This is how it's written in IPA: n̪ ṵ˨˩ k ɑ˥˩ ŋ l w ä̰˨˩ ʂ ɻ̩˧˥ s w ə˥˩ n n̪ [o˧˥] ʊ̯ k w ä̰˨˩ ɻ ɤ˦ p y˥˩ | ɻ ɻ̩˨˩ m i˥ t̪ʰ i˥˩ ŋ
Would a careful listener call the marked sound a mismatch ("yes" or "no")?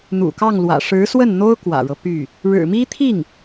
yes